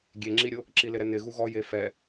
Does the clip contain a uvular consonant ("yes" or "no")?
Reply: no